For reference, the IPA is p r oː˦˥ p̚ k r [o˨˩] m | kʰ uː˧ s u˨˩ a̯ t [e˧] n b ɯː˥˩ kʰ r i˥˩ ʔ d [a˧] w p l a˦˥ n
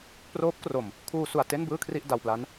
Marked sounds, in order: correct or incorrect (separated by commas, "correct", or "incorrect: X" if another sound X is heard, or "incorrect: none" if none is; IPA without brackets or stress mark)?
correct, incorrect: e˥˩, correct